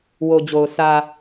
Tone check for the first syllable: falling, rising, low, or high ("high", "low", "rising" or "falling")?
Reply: low